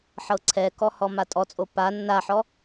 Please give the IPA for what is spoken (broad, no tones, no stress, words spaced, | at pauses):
ħɤǀʰɛkɔ hɔmatʼɔt͡sʼo pa nːaħɔ